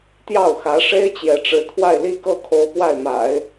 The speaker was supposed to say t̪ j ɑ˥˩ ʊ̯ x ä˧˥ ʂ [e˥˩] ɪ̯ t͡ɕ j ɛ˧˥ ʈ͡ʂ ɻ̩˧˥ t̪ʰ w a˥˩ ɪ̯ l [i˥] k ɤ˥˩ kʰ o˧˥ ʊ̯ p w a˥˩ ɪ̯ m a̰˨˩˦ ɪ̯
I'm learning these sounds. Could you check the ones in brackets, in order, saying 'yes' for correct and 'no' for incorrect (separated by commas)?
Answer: no, yes